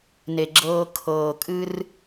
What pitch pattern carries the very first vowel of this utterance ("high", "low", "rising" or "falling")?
low